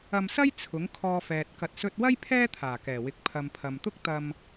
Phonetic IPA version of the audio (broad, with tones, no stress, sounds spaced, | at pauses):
ɐ˧ m s ɐ˥ j t͡sʰ ʊ˨˥ ŋ kʰ ɔː˧ f ɛː˨ t̚ k ɐ˨ t̚ s ɵ˧ t̚ w ɐ˥ j pʰ ɛː˥ t̪ʰ aː˨˩ k ɛː˨˩ w ɪ˨˥ k̚ pʰ ɐ˨ m pʰ ɐ˨ m t̪ ʊ˥ k̚ t̪ ɐ˧ m